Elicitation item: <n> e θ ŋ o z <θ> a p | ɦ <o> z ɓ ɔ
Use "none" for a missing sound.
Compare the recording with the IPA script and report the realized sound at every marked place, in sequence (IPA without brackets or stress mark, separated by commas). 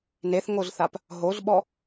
n, θ, o